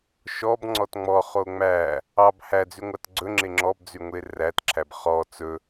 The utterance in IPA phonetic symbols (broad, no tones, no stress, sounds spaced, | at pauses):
ʃ ɔ b ŋ͡ǀ ɔ t ŋ͡m ɔ χ o ŋ͡m æ | ɑ b h æ d͡z y ŋʷ ɑ t ɡ͡ǀ ɵ ŋ͡ǁ e ŋ͡ǁ ɔ b d͡z y ŋʷ e r æ t ǁʰ æ b χ ɔ t͡s ɵ